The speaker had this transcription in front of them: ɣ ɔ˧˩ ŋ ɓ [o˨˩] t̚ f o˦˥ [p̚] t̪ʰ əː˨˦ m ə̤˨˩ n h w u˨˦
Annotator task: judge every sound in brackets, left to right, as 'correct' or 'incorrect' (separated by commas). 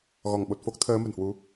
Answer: correct, incorrect